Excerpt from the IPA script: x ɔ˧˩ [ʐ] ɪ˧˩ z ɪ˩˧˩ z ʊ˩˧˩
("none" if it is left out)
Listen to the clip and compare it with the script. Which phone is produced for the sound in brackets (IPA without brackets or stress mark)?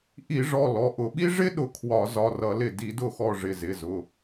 ʐ